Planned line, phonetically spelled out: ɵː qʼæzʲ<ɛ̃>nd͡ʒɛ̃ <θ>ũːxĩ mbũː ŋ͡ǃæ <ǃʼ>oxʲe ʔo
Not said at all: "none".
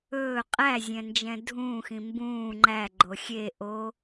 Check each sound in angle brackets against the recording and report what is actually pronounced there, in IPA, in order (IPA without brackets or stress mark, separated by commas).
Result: ɛ̃, dʱ, ɡ͡ǃ